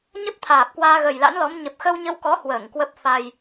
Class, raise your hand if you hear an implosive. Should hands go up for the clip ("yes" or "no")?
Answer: no